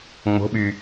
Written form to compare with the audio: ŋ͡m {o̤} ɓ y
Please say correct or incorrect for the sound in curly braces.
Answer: correct